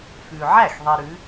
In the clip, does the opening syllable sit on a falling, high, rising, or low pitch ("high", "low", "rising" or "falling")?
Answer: low